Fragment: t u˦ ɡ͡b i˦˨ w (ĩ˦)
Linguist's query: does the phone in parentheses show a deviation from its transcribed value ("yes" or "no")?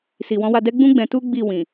yes